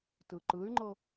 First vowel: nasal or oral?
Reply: oral